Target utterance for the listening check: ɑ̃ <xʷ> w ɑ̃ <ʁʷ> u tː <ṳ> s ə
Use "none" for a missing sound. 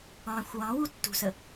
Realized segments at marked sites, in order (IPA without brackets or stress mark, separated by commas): xʷ, w, ṳ